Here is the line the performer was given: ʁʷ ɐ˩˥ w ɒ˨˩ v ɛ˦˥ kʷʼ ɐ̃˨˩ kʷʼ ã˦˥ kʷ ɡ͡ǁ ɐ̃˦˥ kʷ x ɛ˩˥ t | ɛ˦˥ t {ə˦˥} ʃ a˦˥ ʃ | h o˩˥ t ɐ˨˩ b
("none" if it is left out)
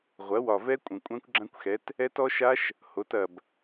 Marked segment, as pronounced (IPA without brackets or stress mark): ɔ˦˥